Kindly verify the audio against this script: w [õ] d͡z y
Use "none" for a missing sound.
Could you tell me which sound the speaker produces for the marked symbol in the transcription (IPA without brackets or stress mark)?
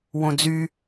õ